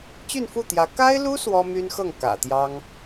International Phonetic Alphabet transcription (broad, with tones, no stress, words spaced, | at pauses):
t͡ɕy˥˧nfu˥˩t̪jä˧˥ ka˥ɪ̯lu˥ swɔ˥my˥nxɤ˥˩ŋ kä̰˨˩ t̪jɑ˥ŋ